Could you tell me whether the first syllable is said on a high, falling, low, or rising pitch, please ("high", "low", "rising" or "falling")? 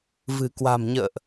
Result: low